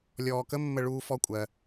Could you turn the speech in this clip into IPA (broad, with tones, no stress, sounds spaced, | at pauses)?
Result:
lʲ ɔː˧ k ə˥ mː ə˥ ɭ uː˥ f ɔ˥ kʷʼ ɜ˧